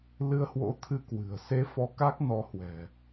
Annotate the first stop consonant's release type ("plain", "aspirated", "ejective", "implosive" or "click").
aspirated